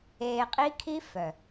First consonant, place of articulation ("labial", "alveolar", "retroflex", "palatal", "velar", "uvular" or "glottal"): uvular